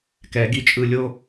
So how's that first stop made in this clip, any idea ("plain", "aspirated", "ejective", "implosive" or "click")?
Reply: plain